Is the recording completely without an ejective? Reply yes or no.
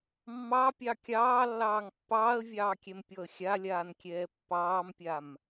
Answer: yes